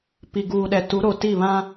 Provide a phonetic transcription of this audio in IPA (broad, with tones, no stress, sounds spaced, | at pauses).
p i˨ ɡ uː˨ ɗ ɛ˨ t u˨˦ ɾ o˨ t i˦˨ β ã˦